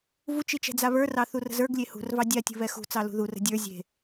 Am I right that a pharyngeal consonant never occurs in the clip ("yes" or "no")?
yes